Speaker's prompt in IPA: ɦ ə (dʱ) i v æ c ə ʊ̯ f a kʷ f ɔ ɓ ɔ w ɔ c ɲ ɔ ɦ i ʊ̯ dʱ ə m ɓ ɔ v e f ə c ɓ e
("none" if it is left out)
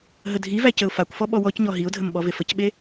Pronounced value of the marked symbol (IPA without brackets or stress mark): dʱ